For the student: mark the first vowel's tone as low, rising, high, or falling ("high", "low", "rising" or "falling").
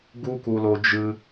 high